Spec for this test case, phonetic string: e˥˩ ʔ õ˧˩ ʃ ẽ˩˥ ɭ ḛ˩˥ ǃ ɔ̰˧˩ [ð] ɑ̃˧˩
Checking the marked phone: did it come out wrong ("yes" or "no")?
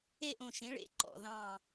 no